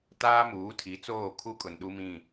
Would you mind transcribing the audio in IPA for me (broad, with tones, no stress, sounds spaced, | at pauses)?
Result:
t aː˦ m uː˨˦ tʰ i˨˦ t͡s oː˦˨ kʰ u˦ kʼ ʊ˨ n ɗ u˦ m ĩ˦˨